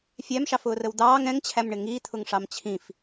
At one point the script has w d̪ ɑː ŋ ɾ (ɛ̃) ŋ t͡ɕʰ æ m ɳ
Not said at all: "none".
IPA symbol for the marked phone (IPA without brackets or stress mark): ɛ̃